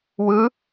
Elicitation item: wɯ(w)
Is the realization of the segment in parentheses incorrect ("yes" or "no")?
yes